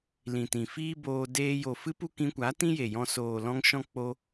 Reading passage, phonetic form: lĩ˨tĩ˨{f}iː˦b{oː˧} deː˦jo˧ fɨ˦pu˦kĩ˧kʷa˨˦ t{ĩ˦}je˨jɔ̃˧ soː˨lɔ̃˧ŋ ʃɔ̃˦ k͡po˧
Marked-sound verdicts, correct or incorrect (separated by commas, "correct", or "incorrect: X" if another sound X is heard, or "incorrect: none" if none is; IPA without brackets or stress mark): correct, correct, correct